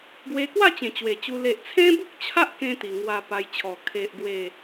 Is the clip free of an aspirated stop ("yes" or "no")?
no